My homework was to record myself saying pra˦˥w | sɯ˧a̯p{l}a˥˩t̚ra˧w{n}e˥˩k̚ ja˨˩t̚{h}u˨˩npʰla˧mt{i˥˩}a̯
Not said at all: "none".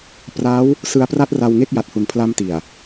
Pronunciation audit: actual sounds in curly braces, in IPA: r, ŋ, h, i˨˩

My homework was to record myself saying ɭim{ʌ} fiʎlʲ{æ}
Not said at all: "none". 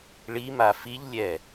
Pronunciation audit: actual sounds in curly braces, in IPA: a, ɛ

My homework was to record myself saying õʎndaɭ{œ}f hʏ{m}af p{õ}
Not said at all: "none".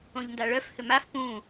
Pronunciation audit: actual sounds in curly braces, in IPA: œ, m, ũ

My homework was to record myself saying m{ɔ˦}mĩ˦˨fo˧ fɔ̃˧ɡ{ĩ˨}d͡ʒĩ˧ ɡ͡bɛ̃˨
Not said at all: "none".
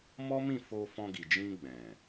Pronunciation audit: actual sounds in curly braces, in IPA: ɔ˦, i˨

